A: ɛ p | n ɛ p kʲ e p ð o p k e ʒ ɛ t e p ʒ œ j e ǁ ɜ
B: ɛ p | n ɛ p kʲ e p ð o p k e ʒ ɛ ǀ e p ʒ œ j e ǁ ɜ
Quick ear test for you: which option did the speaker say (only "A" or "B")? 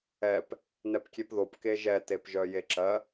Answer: A